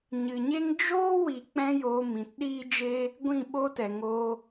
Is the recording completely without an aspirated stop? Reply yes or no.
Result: yes